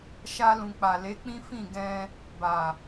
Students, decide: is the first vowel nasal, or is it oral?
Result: oral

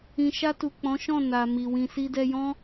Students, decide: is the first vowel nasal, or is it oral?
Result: nasal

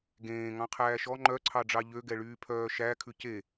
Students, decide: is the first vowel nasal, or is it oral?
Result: nasal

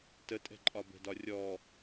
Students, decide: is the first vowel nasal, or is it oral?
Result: oral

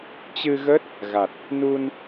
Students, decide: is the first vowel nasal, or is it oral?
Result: oral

